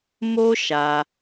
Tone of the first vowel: high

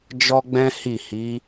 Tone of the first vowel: high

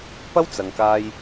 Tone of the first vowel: high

